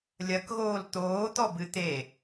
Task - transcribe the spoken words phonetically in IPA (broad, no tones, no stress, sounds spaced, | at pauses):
lʲ ɐ k ɣ oː l t̪ oː t̪ ɔ b ɨ t̪ e